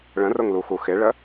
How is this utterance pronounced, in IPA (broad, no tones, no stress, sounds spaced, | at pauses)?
ɭ ə̃ r ʊ ŋ l u x u x ɪ ɭ ə